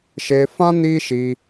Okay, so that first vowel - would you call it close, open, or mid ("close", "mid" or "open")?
mid